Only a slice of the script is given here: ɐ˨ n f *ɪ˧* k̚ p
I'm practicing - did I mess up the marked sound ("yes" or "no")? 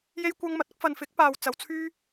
yes